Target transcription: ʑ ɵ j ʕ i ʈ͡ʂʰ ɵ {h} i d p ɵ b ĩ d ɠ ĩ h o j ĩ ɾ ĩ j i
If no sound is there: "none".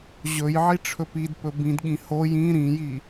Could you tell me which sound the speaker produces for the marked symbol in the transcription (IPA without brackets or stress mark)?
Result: p